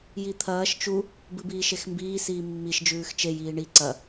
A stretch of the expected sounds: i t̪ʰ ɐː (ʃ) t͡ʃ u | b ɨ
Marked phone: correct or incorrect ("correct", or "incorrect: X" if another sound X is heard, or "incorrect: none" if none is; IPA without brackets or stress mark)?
correct